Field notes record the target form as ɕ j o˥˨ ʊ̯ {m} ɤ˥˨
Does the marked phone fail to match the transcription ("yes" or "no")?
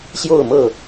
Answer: no